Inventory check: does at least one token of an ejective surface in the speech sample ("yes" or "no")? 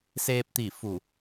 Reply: no